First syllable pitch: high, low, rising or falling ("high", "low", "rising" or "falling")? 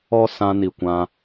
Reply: high